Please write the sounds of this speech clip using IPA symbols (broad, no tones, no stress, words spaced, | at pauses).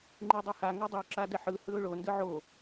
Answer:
ŋ͡ǃidˤɛha ŋodˤu ǁadɛħɯ hɯʊ̯ɭo ndɯʕo